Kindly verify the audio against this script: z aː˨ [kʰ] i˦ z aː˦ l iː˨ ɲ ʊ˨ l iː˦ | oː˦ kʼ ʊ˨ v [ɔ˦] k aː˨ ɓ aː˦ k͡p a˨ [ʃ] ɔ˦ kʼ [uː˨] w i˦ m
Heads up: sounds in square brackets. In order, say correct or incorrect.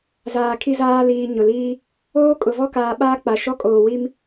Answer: correct, correct, correct, incorrect: oː˨

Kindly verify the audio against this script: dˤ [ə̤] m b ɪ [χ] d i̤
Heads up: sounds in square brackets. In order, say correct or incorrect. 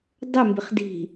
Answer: incorrect: ə, correct

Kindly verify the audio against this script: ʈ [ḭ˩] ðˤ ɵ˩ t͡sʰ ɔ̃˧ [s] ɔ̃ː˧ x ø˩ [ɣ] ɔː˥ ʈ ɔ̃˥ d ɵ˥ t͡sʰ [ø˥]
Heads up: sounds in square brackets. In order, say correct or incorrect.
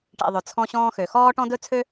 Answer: correct, incorrect: ɕ, incorrect: x, correct

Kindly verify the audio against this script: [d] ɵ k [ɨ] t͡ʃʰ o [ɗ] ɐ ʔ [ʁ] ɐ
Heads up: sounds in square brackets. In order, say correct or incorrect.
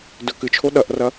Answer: correct, correct, correct, incorrect: r

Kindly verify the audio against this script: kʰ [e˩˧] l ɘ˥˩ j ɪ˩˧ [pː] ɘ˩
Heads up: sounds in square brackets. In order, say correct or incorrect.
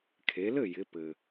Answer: correct, incorrect: p

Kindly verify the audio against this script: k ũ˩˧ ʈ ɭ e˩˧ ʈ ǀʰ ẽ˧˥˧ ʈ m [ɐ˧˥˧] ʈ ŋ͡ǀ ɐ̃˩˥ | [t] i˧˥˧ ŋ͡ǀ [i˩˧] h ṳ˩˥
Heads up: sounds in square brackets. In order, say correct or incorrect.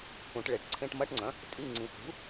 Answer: correct, incorrect: tʼ, incorrect: ĩ˩˧

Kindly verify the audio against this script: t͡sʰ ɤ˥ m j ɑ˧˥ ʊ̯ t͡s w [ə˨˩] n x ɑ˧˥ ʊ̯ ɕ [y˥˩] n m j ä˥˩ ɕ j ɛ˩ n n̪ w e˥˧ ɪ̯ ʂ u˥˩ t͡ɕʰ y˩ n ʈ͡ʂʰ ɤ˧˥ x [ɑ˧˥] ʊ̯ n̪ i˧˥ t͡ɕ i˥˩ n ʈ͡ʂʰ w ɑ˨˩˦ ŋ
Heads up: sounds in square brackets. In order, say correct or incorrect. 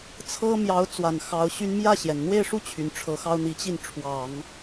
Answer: incorrect: a˨˩, incorrect: y˥, incorrect: ɑ˥

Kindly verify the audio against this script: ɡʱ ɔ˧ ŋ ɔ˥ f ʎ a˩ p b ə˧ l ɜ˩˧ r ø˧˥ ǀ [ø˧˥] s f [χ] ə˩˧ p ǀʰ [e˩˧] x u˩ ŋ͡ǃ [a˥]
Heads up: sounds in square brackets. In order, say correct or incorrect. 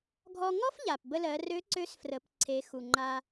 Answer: correct, incorrect: r, correct, incorrect: a˧

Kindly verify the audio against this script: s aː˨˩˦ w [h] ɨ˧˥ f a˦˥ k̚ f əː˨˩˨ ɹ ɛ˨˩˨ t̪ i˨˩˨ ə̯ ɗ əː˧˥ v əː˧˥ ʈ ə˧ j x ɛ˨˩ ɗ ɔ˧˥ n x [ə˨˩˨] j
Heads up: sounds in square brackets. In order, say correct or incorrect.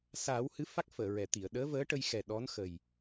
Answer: correct, incorrect: ə˨˩

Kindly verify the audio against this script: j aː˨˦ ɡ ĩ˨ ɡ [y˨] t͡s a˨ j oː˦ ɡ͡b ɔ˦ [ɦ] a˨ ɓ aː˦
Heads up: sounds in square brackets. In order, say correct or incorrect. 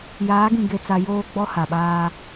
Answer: incorrect: e˨, incorrect: h

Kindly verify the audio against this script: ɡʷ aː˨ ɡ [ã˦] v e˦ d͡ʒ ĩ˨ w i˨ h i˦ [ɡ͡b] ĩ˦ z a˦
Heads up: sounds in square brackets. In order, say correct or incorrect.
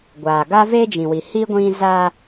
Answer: incorrect: a˦, incorrect: ɡʷ

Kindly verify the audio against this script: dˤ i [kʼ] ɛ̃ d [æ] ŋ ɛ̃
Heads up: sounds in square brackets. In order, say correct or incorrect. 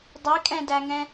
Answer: correct, correct

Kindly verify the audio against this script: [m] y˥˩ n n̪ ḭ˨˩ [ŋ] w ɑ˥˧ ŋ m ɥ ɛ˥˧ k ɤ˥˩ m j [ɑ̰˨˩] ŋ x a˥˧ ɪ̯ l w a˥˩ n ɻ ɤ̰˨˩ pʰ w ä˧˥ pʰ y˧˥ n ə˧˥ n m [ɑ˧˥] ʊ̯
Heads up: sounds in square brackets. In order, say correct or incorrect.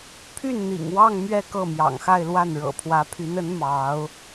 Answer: incorrect: pʰ, correct, correct, correct

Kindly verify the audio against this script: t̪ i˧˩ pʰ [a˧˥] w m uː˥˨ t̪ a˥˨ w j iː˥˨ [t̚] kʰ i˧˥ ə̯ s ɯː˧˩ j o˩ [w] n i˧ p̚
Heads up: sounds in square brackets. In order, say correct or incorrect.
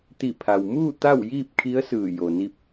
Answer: incorrect: a˩, incorrect: p̚, incorrect: none

